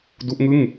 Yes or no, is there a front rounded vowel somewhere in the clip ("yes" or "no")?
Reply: no